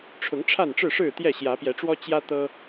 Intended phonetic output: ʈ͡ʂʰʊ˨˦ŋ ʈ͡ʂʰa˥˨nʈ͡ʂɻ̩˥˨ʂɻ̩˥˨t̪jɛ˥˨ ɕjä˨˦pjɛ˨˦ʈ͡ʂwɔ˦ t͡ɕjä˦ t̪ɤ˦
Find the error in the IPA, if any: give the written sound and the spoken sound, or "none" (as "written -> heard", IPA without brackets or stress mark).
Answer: none